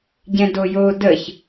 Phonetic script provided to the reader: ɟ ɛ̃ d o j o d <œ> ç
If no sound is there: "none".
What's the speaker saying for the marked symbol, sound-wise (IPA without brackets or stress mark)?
ə